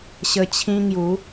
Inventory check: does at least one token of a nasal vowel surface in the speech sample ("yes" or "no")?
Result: yes